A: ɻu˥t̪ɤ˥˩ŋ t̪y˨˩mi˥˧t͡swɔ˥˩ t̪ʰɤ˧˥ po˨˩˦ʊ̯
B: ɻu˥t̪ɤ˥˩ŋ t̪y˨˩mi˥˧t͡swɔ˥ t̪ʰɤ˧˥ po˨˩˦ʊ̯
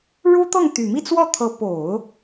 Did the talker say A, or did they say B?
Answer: A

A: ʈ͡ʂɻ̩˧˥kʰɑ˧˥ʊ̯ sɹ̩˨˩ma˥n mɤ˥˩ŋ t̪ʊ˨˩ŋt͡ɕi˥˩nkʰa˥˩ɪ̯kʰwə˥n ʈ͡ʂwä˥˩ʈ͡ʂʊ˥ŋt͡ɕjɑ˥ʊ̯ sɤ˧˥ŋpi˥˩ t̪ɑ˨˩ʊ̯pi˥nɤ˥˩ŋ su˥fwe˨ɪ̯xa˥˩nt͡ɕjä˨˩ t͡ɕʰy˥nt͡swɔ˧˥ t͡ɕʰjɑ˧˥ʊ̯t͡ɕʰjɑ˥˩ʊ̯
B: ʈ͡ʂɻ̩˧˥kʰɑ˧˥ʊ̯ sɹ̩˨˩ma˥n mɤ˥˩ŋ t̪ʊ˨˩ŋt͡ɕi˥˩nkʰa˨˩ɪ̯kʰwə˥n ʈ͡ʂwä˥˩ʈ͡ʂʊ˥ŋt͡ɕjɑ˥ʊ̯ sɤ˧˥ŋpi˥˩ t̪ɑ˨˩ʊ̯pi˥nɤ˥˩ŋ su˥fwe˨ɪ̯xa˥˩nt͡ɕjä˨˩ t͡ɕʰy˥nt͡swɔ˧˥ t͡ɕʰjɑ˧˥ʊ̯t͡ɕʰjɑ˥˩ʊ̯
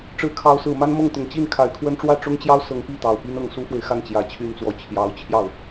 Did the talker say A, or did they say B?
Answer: B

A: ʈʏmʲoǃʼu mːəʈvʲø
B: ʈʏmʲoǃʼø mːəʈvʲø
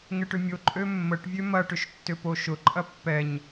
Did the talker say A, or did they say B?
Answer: B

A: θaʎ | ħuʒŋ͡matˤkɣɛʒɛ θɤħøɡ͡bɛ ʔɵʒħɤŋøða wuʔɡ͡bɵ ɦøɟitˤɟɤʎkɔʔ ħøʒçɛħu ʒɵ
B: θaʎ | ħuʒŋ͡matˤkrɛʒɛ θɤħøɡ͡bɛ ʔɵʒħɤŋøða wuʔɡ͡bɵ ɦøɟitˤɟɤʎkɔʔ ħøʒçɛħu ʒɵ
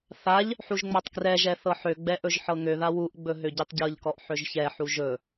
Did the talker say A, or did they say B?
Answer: B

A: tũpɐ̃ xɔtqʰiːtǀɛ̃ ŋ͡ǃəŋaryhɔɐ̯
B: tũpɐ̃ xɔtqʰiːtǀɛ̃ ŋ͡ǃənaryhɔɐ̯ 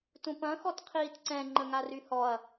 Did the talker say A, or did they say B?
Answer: A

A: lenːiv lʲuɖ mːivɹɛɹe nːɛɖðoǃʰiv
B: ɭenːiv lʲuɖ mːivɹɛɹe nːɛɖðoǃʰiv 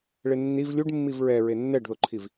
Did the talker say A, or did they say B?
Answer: B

